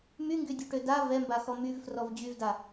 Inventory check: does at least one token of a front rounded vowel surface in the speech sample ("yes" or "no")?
yes